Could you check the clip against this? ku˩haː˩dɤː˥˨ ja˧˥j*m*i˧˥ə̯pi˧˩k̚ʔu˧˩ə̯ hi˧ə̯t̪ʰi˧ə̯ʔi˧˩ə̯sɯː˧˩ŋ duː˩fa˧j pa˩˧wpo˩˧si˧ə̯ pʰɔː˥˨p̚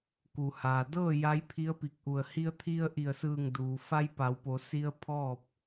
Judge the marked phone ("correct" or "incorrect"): incorrect